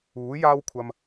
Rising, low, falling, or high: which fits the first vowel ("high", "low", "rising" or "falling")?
rising